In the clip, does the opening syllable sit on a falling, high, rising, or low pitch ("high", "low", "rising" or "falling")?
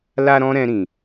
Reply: high